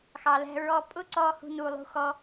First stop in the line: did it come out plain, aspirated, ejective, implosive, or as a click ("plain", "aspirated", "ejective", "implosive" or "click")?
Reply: ejective